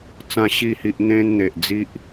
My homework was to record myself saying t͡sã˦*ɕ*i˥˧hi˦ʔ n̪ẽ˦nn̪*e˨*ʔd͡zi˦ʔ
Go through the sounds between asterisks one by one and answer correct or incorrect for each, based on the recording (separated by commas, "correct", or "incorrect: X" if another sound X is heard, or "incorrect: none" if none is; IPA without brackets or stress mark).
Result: correct, correct